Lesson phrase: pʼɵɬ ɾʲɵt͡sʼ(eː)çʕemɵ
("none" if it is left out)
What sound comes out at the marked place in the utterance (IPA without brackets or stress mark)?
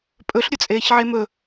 eː